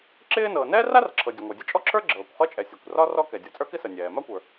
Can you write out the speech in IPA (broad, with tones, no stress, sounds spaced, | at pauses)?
ǁ ɪː˥ n ɤː˩ n ɛː˥ r a˥ r ǁʰ ɤ˩ dʲ ə˩ ŋʷ ə˞˩ dʲ ə˥ t͡ʃʼ ɔ˥ ǁʰ ə˞˥ ɡ͡ǁ ɤː˩ kʷ χ ɤ˥ t͡ʃʼ ɛ˩ sʲ ɔ˩ kʷ r ɒ˥ r ɔ˥ k ɛ˩ dʲ ɤ˩ t͡sʼ ə˞˥ k ɪ˥ s ə˩ nʲ ɛː˩ m a˥ kʷ ə˞˩